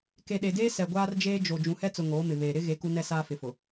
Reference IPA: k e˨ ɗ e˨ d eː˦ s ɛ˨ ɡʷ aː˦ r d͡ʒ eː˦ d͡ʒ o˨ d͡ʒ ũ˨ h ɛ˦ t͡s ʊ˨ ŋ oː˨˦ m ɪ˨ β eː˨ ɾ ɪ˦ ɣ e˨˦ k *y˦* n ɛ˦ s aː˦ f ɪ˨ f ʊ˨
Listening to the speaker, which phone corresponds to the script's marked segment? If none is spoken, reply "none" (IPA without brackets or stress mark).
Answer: u˦